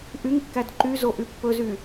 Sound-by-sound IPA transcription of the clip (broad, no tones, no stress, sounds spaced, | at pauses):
ʔ y ŋ kː æ d ǃ y z o ʔ y pː ɵ z y